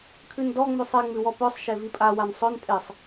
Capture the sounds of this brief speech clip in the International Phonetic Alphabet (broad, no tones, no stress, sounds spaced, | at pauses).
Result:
kʰ ʉ n d ɔ ŋ͡m ʉ sˤ e ŋ͡m ʉ w ɔ p œ sˤ ʃ e v i pʼ a w a n sˤ œ n tʼ e sˤ